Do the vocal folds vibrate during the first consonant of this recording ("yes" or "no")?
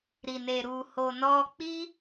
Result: yes